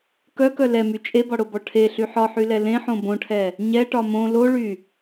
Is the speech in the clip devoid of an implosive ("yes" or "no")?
yes